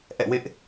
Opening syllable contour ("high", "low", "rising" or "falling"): falling